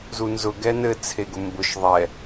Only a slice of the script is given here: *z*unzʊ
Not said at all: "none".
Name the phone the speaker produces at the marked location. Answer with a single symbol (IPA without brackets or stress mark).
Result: z